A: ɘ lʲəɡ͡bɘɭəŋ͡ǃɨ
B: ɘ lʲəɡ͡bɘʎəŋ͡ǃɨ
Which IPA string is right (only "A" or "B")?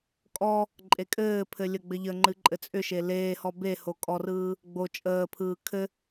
B